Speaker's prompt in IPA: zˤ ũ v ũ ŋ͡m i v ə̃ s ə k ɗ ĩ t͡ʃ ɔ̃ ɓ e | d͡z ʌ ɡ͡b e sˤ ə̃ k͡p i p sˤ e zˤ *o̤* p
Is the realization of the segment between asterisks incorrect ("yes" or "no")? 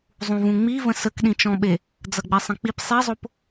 yes